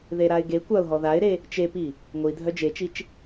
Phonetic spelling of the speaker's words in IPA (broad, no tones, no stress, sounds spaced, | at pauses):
ð e ɾ a ɪ̯ ɡ e kʷ a ʊ̯ ɦ ɔ ð a ɪ̯ ɾ e | t͡ʃ e p i | ŋʷ i dʱ œ d͡ʒ e t͡ʃ i t͡ʃ